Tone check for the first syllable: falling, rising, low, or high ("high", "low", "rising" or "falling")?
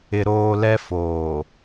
high